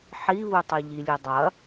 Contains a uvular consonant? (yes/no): no